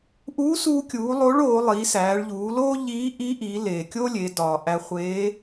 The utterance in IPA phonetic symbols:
ʔuː˧˥suː˧kʲuː˩˧ lˠo˧˥ɭoː˩˧ lˠiː˩˧sæː˩˧ɭʎuː˩˧loː˥ ʎiː˧˥ ʔi˧˥ʔiː˩˧ leː˩kʲoː˥lʲe˩˧ dɒː˩ ʔæ˧χʷeː˧˥

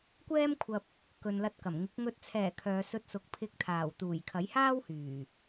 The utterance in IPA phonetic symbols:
kʷɛː˥mkʷʰɐ˧p̚ | kɵ˨nlɐ˧t̚kɐ˨˩mŋɪ˨˥k̚ ŋɵ˨t̚t͡sʰɛː˨˩ kʰœː˨˧sɵ˧t̚sʊ˨˥k̚ pʰɪ˨˥k̚t̪ʰaː˨˩wt̪uː˨˩j kʰɐ˨˥jhaː˥whyː˨˩

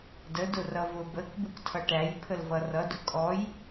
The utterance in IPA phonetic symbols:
dədʊ rʌvʊ bək buktʰʌʈæj pʰəlvʌrʌdʊ kʼɔj

